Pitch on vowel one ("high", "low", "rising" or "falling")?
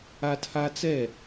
high